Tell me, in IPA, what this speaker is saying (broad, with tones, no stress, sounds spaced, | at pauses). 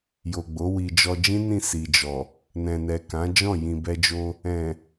j o˨ ɡ͡b o˨˦ w i˧ d͡ʒ ɔ˧ d͡ʒ ĩ˦ n ĩ˦˨ s i˨ d͡ʒ ɔ˨ | n ɛ̃˨ n ɛ˨ k ã˨˦ d͡ʒ ɔ̃˦˨ j ĩ˨ b ɛ˧ d͡ʒ o˧ | ɛ̃˨